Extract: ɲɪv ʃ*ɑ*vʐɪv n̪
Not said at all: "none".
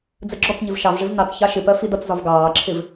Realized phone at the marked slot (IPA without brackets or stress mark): ɑ